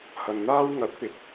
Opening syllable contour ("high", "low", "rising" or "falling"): low